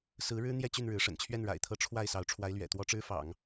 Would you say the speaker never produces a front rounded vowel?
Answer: no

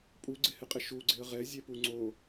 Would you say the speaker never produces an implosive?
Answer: yes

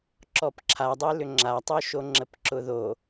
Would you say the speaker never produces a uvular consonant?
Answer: yes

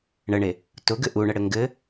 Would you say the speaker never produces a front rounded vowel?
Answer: yes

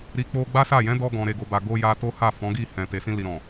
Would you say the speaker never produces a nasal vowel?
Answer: no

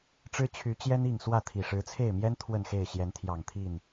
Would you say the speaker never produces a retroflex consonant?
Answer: no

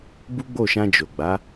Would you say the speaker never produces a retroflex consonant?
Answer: yes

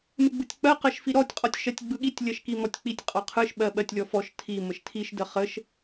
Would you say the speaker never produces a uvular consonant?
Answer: no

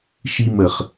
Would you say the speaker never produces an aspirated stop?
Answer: yes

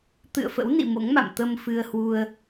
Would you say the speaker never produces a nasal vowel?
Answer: yes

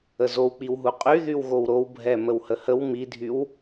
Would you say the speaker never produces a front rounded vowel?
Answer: no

